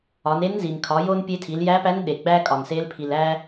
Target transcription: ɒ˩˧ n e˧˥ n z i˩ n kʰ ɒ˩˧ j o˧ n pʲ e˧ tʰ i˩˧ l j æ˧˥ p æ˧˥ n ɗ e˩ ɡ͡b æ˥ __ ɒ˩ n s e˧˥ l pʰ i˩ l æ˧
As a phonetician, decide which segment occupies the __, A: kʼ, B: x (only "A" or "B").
A